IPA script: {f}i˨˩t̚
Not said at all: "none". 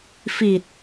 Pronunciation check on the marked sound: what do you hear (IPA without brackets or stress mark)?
f